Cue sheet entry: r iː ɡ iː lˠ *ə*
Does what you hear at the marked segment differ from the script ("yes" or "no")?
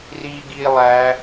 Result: yes